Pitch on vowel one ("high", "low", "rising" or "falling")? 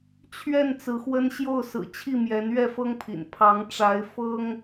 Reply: falling